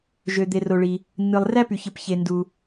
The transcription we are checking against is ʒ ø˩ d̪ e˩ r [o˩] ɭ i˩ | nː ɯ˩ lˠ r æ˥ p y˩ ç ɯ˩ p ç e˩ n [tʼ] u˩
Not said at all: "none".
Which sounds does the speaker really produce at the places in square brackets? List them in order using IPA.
o˩, d

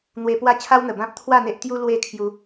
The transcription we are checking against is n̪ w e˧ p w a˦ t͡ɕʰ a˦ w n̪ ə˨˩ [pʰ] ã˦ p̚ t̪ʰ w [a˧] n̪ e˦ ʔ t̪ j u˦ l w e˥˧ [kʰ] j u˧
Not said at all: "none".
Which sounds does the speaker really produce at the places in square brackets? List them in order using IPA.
b, a˥˧, kʰ

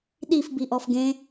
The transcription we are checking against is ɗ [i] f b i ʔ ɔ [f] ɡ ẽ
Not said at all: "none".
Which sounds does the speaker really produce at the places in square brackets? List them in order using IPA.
i, f

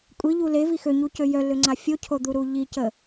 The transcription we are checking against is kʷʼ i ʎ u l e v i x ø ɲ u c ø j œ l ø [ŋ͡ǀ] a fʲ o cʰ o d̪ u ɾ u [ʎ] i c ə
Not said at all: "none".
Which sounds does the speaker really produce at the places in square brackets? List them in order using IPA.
ŋ͡ǀ, ʎ

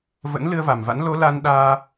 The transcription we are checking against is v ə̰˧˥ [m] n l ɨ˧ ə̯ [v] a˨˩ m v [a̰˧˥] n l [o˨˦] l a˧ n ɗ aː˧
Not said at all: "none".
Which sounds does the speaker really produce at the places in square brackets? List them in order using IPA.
none, v, a̰˧˥, o˨˦

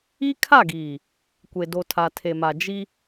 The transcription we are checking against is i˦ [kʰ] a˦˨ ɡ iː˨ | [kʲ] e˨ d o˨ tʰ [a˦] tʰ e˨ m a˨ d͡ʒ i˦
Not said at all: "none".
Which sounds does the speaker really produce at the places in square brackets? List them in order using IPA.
kʰ, kʷ, a˨

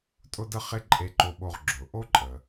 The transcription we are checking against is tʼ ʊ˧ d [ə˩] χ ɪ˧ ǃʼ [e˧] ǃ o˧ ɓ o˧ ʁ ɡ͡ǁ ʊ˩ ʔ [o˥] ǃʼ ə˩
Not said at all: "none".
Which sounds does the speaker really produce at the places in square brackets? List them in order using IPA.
ə˧, e˧, o˥

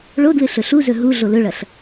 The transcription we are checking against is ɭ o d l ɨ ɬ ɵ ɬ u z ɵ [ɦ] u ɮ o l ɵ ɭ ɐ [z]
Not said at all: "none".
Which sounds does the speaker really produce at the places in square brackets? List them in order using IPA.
ɦ, ɬ

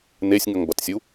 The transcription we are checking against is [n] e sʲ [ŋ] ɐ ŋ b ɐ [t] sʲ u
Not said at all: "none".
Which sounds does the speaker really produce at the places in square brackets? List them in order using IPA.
n, ŋ, t

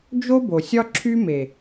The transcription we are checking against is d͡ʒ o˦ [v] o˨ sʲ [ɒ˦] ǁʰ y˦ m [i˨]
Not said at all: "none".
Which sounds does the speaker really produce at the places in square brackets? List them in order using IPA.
b, ɒ˦, e˨

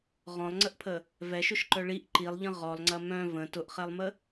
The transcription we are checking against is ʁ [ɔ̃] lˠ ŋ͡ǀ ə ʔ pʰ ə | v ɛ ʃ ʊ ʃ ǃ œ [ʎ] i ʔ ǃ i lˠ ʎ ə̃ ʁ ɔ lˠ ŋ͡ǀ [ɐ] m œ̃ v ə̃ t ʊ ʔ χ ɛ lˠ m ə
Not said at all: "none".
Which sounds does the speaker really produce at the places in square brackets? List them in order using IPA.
ɔ̃, ɭ, ɐ

